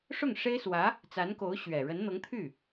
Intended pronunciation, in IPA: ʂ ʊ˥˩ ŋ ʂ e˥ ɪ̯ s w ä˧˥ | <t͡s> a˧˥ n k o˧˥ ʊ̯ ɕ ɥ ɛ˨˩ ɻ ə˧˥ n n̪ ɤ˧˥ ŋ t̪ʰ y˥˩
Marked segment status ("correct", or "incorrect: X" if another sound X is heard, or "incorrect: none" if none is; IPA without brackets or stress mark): correct